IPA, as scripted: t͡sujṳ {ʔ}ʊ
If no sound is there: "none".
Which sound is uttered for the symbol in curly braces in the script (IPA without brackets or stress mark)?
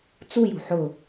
ħ